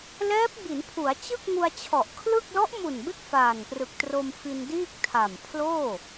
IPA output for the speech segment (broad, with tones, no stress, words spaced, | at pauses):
lɛː˦˥p̚bi˩˦npʰu˩˦a̯ t͡ɕɯ˥˩k̚ŋu˧a̯t͡ɕʰɔ˨˩ʔkʰlɯ˥˩k̚ lɔ˦˥ʔmu˨˩nbe˦˥k̚ faː˨˩nprɯ˨˩k̚tro˧m fi˧ndiː˥˩k̚ tʰa˨˩mpʰloː˥˩